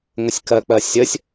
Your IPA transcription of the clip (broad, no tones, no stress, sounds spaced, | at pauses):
ŋ ə sʲ k ɜ k͡p ɜ sʲ ə sʲ